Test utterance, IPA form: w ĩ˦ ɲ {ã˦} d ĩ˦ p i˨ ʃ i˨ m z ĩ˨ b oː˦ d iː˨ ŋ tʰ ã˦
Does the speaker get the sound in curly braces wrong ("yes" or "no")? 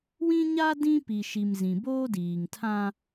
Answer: yes